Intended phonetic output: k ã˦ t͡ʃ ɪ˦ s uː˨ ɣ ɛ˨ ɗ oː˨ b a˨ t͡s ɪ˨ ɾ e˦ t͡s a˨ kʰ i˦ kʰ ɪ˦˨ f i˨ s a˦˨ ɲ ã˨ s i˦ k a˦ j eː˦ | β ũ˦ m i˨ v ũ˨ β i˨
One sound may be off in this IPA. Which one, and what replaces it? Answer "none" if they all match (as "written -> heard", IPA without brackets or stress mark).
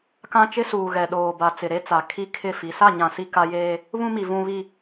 none